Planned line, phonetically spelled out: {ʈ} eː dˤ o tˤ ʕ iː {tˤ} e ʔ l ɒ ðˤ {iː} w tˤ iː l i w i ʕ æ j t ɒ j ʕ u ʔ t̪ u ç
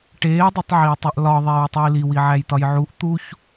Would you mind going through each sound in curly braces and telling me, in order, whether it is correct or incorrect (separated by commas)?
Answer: correct, correct, incorrect